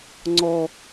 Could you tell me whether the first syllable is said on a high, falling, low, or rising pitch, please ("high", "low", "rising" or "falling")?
high